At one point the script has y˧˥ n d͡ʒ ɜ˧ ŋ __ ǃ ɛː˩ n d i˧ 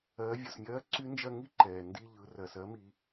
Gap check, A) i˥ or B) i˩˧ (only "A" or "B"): A